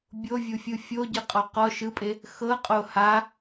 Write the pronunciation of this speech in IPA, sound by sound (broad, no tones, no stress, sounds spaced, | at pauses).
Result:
bʲ o vʲ u fʲ ɯ fʲ o ɟ ɯ qʼ ɔ q ɔ ʃ ɯ pʼ e | x ɤ qʼ o h a